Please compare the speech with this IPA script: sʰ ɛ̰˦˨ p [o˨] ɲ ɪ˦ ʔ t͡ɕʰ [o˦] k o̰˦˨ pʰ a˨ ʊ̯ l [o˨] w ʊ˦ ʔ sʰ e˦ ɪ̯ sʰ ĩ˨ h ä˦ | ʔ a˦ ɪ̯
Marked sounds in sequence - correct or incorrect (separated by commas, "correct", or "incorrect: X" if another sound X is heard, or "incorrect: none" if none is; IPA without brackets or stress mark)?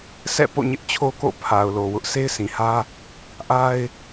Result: incorrect: o̰˦˨, correct, correct